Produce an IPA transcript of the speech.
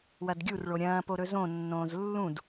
w ɐ d ɡʲ u r ɭ o ɾʲ ɐ̃ː p o ɾ ɵ z õ nː õː z lː ũ d

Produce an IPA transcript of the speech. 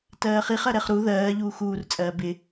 t ɜː χ i χ ɜ ɾ ɛ χ ɾ u ð ɜː ʎ uː x uː r t͡sʼ ɜː b ɪ

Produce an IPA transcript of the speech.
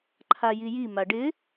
ǃʰ a j i j i m a ɖ ɪ

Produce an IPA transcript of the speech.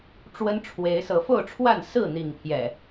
ʈ͡ʂ w ə˦ n ʈ͡ʂʰ w e˨˦ ɪ̯ s ɤ˨˦ f o˥˨ ʊ̯ ʈ͡ʂʰ w a˥˨ n s ɹ̩˥˨ n̪ i˥˨ ŋ pʰ j ɛ̰˨˩

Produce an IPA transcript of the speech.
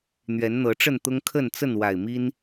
n̪ ɥ ɛ˨˦ n n̪ ɤ˨˦ ʈ͡ʂ ə˥˨ n t̪ ʊ˦ ŋ kʰ ə˥˨ n t͡s ə˥˨ n w a˨˩ ɪ̯ m i˦ n

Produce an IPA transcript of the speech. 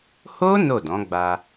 h o˦ n o˦˨ d ɔ̃˨˦ ɡ͡b a˧

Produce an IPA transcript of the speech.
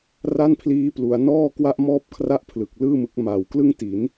r a˥˩ n pʰ l iː˦˥ p l u˩˦ a̯ n ɔː˥˩ k w a˥˩ ʔ m ɔː˥˩ p̚ kʰ r a˥˩ ʔ pʰ l ɯ˨˩ k̚ l ɯː˥˩ m ɯ˦˥ k̚ m a˨˩ w k l ɯ˥˩ ŋ t i˩˦ n

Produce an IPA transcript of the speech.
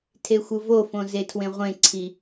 tʰ e xʷ ɯ v o f õ z e tʰ w ẽ ʁʷ ẽ ǀʰ i

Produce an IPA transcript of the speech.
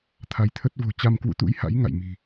t̪ʰ a˨˦ j t̪ʰ ə˦˥ t̚ v o̤˨˩ t͡ɕ a˧ m k w ṵ˧˥ t̪ ṵ˧˥ j h a̰˧˥ j ŋ a̰˧˨ j m i̤˨˩

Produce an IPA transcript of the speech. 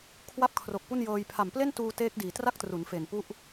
kʰ w a˥˩ p̚ kʰ r o˨˩ k̚ p u˥˩ n j ɤː˧ j pʰ a˨˩ m p l e˥˩ n t uː˧ t eː˦˥ k̚ d iː˨˩ t r a˥˩ k̚ t r u˩˦ n f e˨˩ n p u˥˩ ʔ

